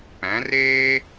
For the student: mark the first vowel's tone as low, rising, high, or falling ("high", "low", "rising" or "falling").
rising